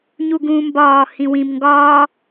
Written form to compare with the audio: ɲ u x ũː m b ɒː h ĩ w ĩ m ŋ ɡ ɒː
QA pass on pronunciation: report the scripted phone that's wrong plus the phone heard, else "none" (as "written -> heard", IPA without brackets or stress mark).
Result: x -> ɡ